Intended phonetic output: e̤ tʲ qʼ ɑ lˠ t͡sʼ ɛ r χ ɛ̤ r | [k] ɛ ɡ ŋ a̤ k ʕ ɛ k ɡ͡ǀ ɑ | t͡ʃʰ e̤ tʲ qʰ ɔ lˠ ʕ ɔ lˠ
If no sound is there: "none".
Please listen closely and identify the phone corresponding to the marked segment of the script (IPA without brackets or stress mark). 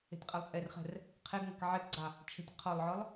qʰ